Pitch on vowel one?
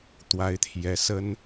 rising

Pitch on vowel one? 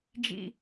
low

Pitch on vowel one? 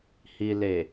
low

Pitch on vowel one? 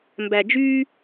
low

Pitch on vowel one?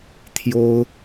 high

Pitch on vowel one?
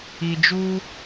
low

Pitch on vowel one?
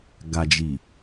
low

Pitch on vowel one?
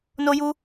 high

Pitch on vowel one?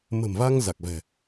low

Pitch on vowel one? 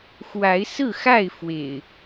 rising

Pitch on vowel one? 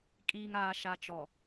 low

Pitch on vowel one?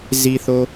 low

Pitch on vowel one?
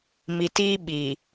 low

